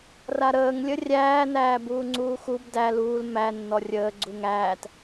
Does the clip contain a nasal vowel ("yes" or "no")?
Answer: no